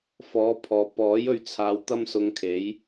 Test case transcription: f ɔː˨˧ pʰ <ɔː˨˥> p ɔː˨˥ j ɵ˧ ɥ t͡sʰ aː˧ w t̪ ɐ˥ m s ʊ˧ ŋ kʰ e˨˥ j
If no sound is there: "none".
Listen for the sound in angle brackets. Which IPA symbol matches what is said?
ɔː˨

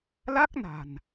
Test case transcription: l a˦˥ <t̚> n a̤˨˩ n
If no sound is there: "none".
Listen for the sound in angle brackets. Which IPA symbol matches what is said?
k̚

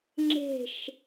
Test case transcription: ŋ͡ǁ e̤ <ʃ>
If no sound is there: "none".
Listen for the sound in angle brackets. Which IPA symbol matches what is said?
ʃ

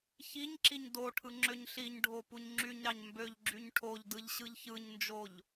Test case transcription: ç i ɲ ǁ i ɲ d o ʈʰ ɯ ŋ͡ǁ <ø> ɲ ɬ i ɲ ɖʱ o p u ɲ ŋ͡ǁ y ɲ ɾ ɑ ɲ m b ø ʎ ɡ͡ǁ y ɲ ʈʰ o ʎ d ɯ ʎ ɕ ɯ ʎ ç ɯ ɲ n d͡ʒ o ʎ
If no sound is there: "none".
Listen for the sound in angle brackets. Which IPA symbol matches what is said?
ø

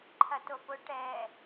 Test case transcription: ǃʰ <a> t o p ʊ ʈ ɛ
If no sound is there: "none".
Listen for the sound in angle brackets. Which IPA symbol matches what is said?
ɐ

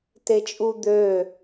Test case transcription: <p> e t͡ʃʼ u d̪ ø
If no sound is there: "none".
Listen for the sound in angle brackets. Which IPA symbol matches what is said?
t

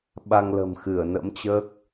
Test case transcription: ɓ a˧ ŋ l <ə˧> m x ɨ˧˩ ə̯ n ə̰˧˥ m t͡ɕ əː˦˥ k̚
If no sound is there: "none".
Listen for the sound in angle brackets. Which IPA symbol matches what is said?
ə̤˨˩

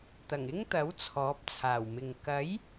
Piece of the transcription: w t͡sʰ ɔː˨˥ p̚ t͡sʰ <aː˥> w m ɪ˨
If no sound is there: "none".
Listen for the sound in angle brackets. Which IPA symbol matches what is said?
aː˨˩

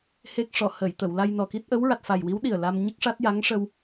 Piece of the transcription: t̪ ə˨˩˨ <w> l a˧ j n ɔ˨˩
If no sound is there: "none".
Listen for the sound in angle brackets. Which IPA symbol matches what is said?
w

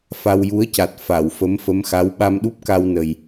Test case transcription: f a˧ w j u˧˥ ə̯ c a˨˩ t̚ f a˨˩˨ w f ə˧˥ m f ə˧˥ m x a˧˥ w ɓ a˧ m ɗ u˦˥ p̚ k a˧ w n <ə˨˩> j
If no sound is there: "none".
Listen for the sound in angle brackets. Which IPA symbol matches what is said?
ə˨˩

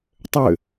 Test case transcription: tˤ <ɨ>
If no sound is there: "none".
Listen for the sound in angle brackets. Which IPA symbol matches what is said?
ʏ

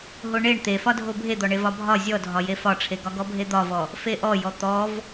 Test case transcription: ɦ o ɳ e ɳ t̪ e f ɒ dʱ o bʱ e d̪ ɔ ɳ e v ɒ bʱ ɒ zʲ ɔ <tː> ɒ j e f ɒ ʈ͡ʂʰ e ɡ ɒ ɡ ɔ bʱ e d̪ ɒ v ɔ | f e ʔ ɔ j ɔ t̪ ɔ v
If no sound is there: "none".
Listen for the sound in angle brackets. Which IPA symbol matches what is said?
dʱ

